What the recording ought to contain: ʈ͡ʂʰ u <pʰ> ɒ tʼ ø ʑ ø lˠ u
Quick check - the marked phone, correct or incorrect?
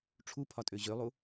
correct